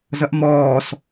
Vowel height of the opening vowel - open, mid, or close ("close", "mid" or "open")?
mid